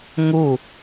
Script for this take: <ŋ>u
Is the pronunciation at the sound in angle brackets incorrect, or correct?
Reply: correct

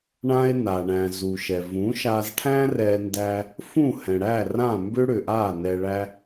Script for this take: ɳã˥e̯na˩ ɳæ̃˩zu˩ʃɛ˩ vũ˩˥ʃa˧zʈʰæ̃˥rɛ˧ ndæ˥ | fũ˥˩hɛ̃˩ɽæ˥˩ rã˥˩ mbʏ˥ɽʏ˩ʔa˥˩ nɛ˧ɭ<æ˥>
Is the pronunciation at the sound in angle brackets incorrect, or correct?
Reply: correct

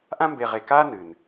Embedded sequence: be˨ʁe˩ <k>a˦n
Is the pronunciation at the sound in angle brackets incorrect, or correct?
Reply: correct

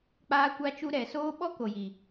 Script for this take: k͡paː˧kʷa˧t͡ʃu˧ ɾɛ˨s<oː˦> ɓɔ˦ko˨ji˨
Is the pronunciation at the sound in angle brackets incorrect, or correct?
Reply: correct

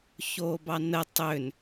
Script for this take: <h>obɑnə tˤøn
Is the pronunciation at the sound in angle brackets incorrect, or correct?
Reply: incorrect: ç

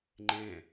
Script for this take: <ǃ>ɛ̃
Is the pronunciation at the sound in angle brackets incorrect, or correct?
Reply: incorrect: ŋ͡ǃ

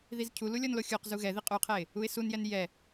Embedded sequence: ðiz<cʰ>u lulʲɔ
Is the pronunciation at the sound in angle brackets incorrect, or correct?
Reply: correct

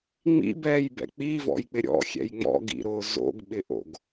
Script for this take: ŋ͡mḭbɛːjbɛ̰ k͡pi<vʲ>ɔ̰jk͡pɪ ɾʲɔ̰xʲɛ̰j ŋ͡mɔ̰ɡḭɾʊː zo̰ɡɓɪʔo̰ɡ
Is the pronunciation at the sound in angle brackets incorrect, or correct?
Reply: incorrect: v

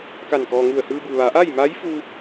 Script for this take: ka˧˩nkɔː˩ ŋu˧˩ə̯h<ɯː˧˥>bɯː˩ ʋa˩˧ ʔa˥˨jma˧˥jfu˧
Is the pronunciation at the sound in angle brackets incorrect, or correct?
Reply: incorrect: ɯː˧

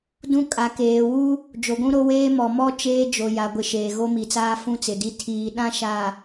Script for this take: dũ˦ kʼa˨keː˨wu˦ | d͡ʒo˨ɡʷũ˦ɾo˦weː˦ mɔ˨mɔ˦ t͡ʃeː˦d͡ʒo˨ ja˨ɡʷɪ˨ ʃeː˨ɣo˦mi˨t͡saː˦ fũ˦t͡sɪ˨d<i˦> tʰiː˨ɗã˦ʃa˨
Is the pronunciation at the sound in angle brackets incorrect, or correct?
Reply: correct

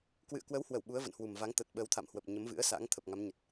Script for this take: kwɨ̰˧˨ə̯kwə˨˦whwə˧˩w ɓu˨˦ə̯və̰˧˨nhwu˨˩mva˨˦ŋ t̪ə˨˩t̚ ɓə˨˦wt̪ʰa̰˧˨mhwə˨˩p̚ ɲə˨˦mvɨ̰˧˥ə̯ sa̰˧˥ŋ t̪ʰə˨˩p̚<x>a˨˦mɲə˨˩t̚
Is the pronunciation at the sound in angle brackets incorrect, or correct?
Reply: incorrect: ŋ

